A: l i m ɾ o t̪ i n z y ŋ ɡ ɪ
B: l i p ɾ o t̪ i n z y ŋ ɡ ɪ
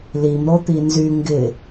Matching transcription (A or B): A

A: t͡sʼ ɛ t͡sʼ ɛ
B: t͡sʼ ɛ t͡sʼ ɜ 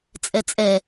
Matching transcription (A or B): A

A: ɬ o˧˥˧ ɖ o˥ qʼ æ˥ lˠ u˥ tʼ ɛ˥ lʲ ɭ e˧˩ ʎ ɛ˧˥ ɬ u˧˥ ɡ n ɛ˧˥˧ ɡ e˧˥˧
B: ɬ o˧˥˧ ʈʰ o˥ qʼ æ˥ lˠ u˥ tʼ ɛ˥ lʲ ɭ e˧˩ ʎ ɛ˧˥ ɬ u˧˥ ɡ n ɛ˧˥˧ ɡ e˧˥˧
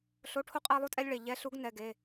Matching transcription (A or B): B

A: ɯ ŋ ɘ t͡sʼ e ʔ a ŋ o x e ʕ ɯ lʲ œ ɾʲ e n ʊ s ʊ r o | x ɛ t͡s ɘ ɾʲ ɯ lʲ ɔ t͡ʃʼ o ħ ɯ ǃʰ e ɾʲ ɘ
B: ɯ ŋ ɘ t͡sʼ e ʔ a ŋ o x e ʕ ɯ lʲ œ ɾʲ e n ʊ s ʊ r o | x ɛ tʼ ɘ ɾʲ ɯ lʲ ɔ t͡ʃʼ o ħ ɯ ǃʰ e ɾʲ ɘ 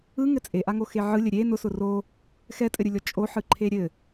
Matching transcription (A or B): B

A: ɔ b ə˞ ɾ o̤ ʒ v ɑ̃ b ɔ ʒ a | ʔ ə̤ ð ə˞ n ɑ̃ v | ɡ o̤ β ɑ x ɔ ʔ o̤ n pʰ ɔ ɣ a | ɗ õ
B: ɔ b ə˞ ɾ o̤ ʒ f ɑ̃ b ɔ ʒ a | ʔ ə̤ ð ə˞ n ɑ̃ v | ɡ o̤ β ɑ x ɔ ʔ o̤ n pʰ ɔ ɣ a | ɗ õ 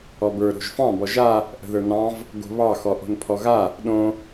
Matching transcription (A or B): B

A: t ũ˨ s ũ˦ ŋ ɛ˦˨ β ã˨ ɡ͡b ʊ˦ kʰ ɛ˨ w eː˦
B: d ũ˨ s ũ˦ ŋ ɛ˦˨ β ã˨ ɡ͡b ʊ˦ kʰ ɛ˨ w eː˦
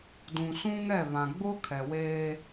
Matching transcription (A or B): B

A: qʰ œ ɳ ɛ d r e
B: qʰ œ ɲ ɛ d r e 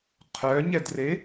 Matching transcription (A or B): B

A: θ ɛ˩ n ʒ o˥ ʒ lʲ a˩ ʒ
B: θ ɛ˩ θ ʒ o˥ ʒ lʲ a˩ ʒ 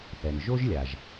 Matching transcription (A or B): A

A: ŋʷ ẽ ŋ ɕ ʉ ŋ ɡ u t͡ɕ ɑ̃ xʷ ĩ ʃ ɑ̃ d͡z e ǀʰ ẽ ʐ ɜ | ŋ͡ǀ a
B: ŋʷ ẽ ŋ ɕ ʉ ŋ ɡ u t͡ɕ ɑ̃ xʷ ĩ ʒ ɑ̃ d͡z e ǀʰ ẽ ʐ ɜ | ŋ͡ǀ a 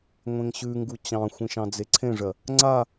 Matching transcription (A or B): A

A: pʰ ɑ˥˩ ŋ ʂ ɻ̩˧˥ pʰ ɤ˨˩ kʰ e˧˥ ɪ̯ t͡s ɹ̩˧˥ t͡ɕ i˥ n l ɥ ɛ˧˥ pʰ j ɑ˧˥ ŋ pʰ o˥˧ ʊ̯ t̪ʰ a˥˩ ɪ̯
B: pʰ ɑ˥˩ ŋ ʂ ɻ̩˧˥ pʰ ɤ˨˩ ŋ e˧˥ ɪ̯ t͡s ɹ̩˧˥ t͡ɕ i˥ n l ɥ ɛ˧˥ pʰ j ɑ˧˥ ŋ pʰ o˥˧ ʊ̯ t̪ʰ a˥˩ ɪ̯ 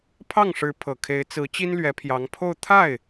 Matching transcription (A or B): A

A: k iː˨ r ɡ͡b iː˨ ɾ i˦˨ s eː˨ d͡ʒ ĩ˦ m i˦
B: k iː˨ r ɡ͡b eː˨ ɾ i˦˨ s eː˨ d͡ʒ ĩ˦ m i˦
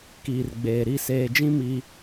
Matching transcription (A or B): B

